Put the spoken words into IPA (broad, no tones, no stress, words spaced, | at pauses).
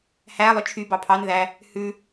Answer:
hæ lˠɵt͡ʃʰy bɑpʰɑn ðæ | hʉ